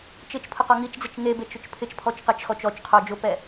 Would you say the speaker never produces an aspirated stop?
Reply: no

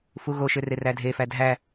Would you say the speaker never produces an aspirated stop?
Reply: yes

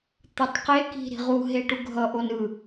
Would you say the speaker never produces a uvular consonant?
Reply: no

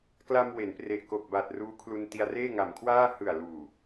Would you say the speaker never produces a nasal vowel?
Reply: yes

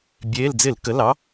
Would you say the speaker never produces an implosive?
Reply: yes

